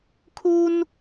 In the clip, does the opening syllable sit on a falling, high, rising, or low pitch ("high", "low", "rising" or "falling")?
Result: high